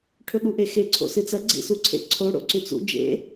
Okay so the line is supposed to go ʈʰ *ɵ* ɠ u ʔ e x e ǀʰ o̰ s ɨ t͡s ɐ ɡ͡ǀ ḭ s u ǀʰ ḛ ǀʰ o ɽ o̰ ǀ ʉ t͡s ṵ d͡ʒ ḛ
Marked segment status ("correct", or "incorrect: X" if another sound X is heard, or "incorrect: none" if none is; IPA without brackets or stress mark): correct